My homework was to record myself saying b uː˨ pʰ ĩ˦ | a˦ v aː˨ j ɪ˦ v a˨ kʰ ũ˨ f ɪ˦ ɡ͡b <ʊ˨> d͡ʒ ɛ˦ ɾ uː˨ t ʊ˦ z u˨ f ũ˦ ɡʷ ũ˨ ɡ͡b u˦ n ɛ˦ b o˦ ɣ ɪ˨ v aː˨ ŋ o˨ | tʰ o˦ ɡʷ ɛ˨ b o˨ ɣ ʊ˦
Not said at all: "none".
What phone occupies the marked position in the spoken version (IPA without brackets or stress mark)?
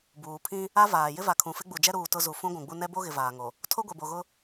u˨